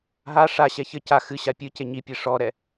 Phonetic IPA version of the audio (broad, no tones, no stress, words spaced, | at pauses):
ɦa ʂaɕɛ çɘ ca xɨ ɕapʲɨce ɲipʲe ʂɔɾɛ